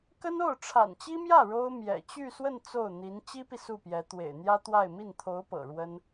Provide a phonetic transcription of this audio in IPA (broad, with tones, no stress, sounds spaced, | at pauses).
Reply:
k ə˥ n o˥˩ ʊ̯ ʈ͡ʂʰ a̰˨˩ n t͡ɕ i˥ m j ä˥˩ ɻ o˥ ʊ̯ m j ɛ̰˨˩ t͡ɕ y˥˧ s w ə˥˧ n t͡s o˥˩ ʊ̯ n̪ i˧˥ n t͡ɕ i˥ p i˨ s u˥˩ p j ɛ˧˥ t̪ w ḛ˨˩ ɪ̯ n̪ j ä˥ t̪ w a˥˧ ɪ̯ m i˥˩ n t̪ʰ o˧˥ ʊ̯ p ɤ̰˨˩ ɻ w ə˥ n